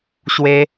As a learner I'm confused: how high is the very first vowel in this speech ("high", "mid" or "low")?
mid